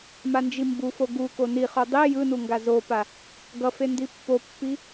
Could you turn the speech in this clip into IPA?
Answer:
m a n d͡ʒ i m b u f o ɡ u k o n i χ o dˤ i j ɯ n u ŋ ɡ a z o p a | ɡ ʌ f e n d i pː o pː i

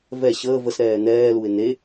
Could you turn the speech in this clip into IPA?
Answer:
v ɛ ɕ əː v ə s ɾ ɛː n̪ ɛː l u ɪ̯ n e

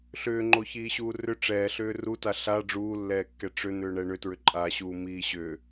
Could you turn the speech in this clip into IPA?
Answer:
ɬ ʏː ŋ͡ǃ o ç iː ɕ uː r ʏ ʈ͡ʂ ɛː ɬ ʏː r u t a ɬ a ɖ͡ʐ uː lː ɛː kː ɛ ʈ͡ʂ ʏ n̪ ʏː ɳ ɛ ɳ ʏ t ɹ ʏ ǃʼ aː ɕ uː m iː ɕ ʏ

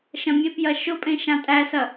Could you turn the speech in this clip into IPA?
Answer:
ʃ ɐ̃ mʲ e p j ɐ ʃ ʊ pʼ ẽ ʃ ã tʼ æ s ɐ

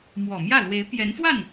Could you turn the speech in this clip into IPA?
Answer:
m w ɔ˨˩ m j ä˥˩ l w e˧˥ ɪ̯ p j ɛ˧˥ n f w a˥˩ n

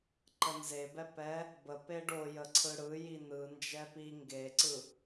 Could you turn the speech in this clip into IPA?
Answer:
ǃ ə n z e b ɛ p ɛ | b ə p e ɖ o j ə ǀʰ ɯ ɽ ɯ j i n ɯ n d͡ʒ ɛ p i ŋ ɡ e ǀ ɯ

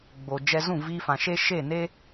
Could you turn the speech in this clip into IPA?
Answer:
ɡ͡b o˨ d͡ʒ ɛ˧ z ũ˦˨ v iː˧ f ã˨ ʃ e˦ ʃ e˦˨ n e˦

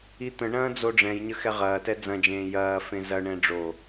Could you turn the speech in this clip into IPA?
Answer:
i t̪ ə̃ ɳ ɐ̃ː d͡z o ɖ͡ʐ ɛ̃ j ɲ ə x ɛ ʁ ɐː t ɛ d͡z ɐ̃ d͡ʒ ẽː j ɐː f ẽ z ɐ ɳ ɛ̃ ɖ͡ʐ o

